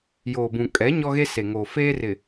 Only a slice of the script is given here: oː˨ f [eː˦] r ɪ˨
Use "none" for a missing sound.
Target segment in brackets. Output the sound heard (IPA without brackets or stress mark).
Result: eː˦